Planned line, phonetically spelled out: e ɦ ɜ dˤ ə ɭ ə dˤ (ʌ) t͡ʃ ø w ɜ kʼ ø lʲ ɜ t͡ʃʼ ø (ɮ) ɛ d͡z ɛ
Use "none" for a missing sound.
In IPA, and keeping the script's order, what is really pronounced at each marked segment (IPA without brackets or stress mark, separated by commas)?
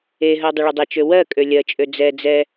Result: ə, d͡z